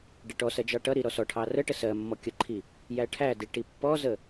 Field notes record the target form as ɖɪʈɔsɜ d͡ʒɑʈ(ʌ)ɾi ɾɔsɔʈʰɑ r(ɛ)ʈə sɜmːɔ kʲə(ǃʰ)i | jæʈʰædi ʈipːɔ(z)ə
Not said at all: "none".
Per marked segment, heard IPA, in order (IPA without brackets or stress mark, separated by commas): ʌ, ə, ǃʰ, z